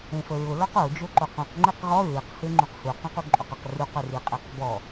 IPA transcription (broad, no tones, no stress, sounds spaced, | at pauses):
ẽ f ə ɹ ʊ l ɔ q o d͡ʒ o ǃ o q ũ q ŋ͡ǃ e q ʁ ɔ ɹ i q h e ŋ͡ǃ ũ q h u q ũ q u ǃʼ o q ə q r u q ʏ r i qʼ e q b ɔ